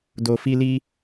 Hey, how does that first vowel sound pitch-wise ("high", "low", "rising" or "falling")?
low